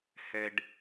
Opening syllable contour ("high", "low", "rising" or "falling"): low